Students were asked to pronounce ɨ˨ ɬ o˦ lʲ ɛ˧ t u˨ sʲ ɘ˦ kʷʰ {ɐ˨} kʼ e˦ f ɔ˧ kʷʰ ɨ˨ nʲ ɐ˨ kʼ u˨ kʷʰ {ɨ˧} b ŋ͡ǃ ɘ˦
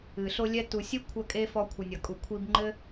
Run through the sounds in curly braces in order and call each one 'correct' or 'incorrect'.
incorrect: ɐ˦, incorrect: i˧

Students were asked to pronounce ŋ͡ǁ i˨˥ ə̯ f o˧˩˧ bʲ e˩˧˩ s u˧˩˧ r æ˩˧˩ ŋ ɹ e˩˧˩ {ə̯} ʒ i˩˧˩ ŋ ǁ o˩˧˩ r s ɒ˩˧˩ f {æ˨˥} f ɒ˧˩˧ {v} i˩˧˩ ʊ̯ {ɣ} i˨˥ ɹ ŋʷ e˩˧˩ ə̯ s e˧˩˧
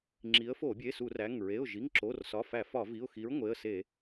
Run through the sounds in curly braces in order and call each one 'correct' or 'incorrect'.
incorrect: ʊ̯, incorrect: æ˧˩˧, correct, incorrect: x

